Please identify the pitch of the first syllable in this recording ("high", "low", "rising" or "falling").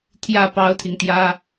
falling